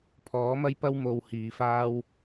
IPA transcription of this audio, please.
pʰ ɔː˨˥ m ɐ˥ j p ɐ˥ w m o˧ w h iː˨˧ f aː˥ w

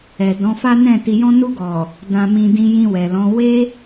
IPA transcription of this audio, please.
ɛ˨ d ɔ̃˨˦ f a˦ n ɛ̃˦˨ t i˨ j ɔ̃˧ n u˧ ɡ ɔ˨ | d ã˨ m ĩ˨ d ĩ˧ j ĩ˧ w ɛ˨ l ɔ̃˨˦ w e˧

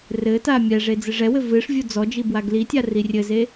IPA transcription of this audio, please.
r ɘ t a mʲ ɛ ʐ e d͡z ɨ ʐ ɛ w ɘ v ɨ ʂ vʲ u d͡z ɔ d͡ʒ i b w a ɡ l i tʲ a r i rʲ ɘ z e

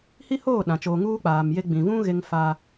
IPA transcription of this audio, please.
h i˦ h oː˦˨ ɗ ã˨ t͡ʃ oː˨ ŋ uː˦ k͡p aː˨ m j e˦ ɡ͡b ĩ˨ v ũ˦ ɣ e˦ ŋ f a˦

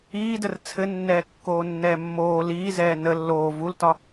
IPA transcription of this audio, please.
iː d ə r t͡sʰ ɘ nː ɛː kː oː nː ɛː mː oː l iː z ɛː n ə lː oː v u l t ɒ

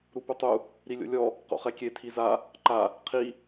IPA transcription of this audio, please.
ɾ u p u tˤ u | ɾ i lʲ o̰ lʲ ɔ | q o̰ χ ɛ kʲ e tʰ i z a | ǃ a | qʰ i

